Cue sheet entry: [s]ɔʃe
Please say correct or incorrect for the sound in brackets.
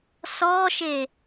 correct